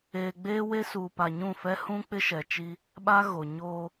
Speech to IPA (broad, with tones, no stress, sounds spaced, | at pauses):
eː˨ ɡ͡b eː˦ w e˦ s uː˨ p a˨ ɲ ũ˦˨ f ɛ˦ h ũ˦ k͡p ɪ˦ ʃ ɛ˨ t͡ʃ i˦ | ɓ a˦ ɣ o˨ ɲ oː˦